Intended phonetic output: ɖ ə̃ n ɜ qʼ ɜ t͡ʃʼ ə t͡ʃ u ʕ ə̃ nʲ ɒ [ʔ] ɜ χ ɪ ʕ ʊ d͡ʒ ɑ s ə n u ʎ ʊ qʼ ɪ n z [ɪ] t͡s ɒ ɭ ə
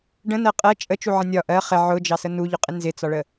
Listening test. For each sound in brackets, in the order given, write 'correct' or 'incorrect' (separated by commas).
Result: correct, correct